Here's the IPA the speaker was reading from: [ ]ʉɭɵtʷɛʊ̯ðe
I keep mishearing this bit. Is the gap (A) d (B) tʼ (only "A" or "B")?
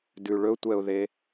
A